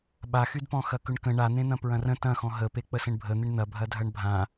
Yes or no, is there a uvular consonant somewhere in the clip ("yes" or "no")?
no